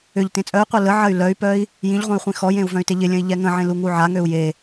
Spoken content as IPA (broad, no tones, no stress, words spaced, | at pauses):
ʏʎ tẽt͡sʼœy̯qʷœ ləʕɐy̯ lœy̯pœi̯ | jĩʎʁʷœ̃y̯ χʷĩxɔjẽu̯ vœ̃y̯teʎɪlʲə̃i̯ ʎɛŋə̃ʕẽ luŋuʕaŋøu̯ je